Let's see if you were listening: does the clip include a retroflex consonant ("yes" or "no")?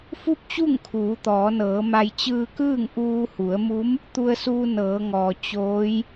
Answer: no